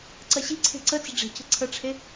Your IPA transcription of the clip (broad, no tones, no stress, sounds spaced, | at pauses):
ǀ ɐ ɕ i̤ ǀʰ e̤ ǀ ə t͡s ə̤ ɖ͡ʐ e̤ c ə̤ ǀʰ ə ʈ͡ʂʰ e